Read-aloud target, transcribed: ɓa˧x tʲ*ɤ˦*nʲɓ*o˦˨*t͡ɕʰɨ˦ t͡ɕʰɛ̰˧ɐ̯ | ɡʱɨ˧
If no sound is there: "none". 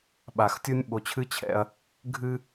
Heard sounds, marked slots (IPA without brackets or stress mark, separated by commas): o˦, o˧